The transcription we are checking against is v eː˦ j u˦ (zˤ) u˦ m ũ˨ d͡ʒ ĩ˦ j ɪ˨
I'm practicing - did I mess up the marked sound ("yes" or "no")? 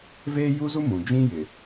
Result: yes